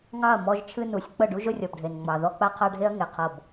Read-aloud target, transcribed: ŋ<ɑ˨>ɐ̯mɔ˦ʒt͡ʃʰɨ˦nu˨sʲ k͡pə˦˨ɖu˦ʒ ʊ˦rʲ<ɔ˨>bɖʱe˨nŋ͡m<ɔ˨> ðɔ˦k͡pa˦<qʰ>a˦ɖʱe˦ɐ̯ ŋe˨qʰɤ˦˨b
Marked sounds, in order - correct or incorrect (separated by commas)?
incorrect, correct, incorrect, correct